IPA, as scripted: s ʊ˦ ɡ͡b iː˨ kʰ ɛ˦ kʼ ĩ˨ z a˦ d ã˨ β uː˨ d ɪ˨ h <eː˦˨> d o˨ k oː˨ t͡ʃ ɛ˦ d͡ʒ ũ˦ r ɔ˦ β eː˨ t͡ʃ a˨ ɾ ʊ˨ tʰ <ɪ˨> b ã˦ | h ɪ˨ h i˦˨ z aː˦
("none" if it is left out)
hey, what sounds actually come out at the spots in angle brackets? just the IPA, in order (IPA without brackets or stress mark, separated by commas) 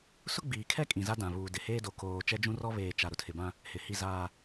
eː˦, ɪ˨